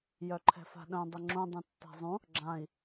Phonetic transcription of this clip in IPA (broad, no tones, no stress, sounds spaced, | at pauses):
j œ ǃʰ ɛ̤ f a̤ ɗ œ̃ dˤ ɘ ŋ͡ǁ ũ dˤ ũ tː a̤ zˤ ũ | ɡ͡ǁ ã i̯